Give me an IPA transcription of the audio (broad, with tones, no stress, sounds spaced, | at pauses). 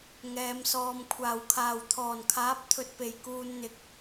ŋ ɛː˨ m s ɔː˨ m kʷʰ aː˨˩ w kʰ aː˨˩ w t̪ʰ ɔː˨˩ n kʰ aː˨˥ p̚ t̪ʰ ɵ˨ t̚ p e˨˩ j k uː˨ n n̪ ɪ˨ k̚